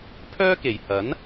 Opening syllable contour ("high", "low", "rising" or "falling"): high